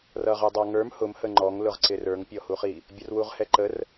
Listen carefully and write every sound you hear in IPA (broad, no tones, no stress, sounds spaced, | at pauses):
r ʌ ʁ ə˞ dˤ ɑ ŋ ə˞ m h ʊ m h ə ŋ͡ǃ ɔ ŋ l ʊ ʁ ǀ ɪ r ə˞ ŋ pʲ ɔ h u χ i | bʲ ə r w u ʁ h ɛ ǃ ə r